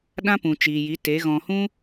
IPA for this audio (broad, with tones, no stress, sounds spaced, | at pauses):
ɗ ã˦ p ũ˨ t͡ʃ iː˨ j i˨˦ t e˨˦ ɣ ɔ̃˧ h ũ˦